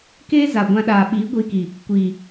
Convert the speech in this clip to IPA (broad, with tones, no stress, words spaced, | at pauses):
keː˦za˨ ɡʷã˧ ɗaː˨ɓiː˨˦ ɡʷiː˧ki˨ | kʷiː˨